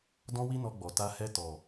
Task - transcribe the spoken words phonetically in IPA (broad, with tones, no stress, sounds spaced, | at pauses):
d ɔ̃˦ w i˦ n ɔ˧ ɡ͡b ɔ˨ t a˧ h ɛ˧ t ɔ˨